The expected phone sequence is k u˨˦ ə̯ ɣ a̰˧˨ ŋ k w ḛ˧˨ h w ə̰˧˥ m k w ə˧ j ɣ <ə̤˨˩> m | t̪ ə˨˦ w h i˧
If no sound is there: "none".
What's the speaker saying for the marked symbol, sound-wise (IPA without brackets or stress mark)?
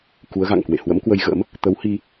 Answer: ə̰˧˥